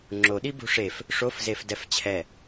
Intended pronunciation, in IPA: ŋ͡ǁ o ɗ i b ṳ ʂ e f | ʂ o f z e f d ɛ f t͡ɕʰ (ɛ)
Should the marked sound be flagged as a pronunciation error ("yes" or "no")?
no